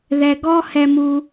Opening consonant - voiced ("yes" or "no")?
yes